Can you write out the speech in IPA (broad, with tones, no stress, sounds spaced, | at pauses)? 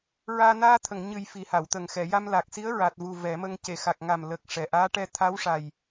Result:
ɹ aː˧ n aː˧ t̪ʰ ə˨˩˨ ŋ ɲ ɨ˨˩ j f i˨˩ h a˨˩˨ w t̪ ə˨˩ ŋ x ɛ˨˩˨ j a˧ m l a˨˩ k̚ s i˧˥ ə̯ ɹ a˨˩ t̚ v u˨˩ v ɛ˨˩˦ m ə˧ ŋ c e˨˩˨ x a˨˩ k̚ ŋ a˨˩ m l ə˨˩ k̚ ʂ ɛ˨˩ ʔ aː˧˥ ʈ ɛ˧ t̪ʰ a˧˥ w ʂ a˨˩ j